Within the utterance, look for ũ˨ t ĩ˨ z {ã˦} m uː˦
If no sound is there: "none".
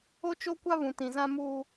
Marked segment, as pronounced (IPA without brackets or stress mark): ã˦